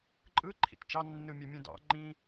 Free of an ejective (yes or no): no